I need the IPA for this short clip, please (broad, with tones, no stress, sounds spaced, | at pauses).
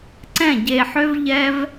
ǀ ɛ̃˦˨ ɟ e˧ ħ ø˦ v ʎ ɛ˦ v